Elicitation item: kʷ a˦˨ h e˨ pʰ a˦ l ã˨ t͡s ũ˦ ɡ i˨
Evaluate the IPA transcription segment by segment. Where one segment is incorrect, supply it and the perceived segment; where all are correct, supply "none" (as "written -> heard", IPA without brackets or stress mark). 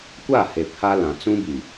ɡ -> b